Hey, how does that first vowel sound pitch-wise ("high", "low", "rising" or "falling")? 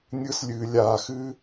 high